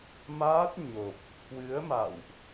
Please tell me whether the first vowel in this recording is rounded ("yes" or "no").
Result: no